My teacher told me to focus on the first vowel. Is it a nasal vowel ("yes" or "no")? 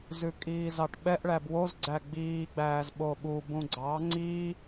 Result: no